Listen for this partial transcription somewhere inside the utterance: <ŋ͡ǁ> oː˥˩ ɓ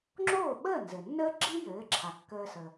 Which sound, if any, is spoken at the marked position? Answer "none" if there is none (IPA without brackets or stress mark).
ŋ͡ǁ